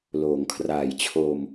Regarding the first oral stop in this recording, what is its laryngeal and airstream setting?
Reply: aspirated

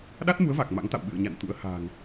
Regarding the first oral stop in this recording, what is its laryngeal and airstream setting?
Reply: implosive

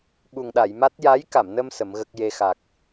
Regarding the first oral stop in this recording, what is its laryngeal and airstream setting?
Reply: implosive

